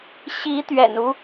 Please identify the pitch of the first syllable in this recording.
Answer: rising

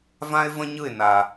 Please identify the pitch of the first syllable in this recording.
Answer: high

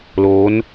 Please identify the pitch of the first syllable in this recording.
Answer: rising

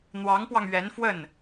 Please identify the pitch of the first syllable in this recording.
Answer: rising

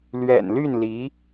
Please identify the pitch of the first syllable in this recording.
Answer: low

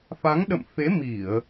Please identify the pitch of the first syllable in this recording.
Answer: rising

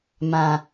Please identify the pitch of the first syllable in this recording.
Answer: low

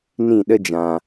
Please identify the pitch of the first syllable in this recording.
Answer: falling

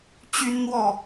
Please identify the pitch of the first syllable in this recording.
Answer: high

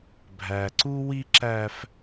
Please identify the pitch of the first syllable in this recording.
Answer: low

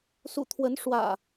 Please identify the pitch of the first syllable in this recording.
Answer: low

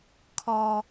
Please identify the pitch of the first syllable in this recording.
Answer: low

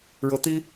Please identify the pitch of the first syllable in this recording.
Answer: rising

